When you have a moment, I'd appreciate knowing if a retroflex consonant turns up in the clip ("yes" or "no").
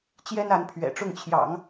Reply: yes